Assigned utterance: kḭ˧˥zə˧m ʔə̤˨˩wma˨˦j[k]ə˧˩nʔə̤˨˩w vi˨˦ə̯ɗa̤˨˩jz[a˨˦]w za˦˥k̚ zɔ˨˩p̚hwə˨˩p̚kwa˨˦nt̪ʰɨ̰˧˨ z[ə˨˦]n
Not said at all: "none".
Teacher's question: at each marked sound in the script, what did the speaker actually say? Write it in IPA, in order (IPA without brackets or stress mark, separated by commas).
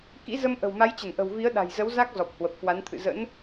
t͡ɕ, ə˨˦, ə̰˧˥